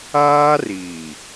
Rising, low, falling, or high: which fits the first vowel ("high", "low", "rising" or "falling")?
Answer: high